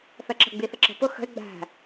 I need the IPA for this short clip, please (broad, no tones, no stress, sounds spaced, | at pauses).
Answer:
θ ɜ ǁ ə̤ ɡ͡b i θ ə ǁ ə̤ p ʊ x ə̤ e̯ ɡ͡b æ̤